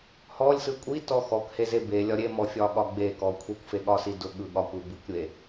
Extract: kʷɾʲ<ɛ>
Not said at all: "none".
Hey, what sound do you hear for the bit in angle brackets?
e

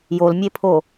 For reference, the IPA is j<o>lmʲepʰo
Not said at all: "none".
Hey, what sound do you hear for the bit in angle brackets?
o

